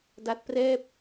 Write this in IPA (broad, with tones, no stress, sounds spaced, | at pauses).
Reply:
d a˦˥ t̚ p r ɛː˥˩ p̚